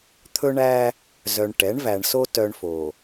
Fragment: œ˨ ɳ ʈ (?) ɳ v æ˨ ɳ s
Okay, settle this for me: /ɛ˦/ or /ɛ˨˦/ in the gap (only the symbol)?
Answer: ɛ˨˦